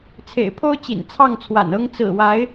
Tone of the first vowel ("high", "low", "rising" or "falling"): low